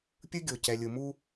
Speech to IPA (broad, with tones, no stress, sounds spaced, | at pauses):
pʲ ɯ˦ ɡʲ o˨ c ɛ˨ lʲ ɯ˨ m u˦